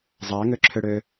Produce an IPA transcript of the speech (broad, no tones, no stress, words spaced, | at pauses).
zˤaŋøǁʰøɽø